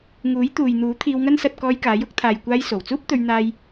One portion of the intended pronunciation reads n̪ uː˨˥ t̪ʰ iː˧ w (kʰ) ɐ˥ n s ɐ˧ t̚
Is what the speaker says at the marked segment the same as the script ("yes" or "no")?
no